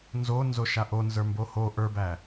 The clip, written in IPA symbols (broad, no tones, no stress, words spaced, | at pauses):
nzonzoʃa ʔonzə˞mbo ho ʔə˞bæ